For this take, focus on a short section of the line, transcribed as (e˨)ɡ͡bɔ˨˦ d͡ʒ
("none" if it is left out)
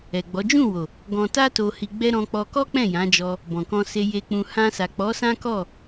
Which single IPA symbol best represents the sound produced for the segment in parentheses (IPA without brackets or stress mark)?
ɛ˨